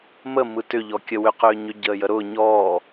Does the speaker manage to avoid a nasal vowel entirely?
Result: yes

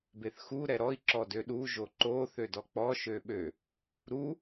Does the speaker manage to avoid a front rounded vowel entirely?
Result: no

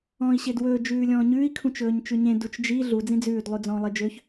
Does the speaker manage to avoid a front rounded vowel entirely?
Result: no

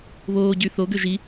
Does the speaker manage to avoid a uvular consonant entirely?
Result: yes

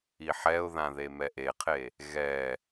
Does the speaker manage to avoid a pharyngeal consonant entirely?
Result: no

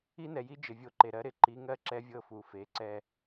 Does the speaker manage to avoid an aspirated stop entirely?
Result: yes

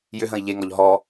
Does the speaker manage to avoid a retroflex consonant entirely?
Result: yes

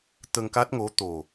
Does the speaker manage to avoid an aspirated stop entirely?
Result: yes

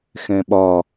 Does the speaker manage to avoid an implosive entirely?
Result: no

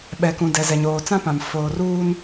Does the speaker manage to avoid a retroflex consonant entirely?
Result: yes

